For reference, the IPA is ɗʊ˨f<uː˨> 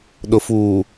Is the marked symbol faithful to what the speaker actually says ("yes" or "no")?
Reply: yes